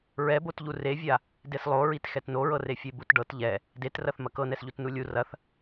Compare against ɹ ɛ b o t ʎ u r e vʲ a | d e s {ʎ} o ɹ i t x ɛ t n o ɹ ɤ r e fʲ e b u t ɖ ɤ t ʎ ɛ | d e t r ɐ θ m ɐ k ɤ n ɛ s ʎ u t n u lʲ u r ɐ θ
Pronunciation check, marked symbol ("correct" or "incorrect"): incorrect